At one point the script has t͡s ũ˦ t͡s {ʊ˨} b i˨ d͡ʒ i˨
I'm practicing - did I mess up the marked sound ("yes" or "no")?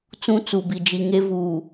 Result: yes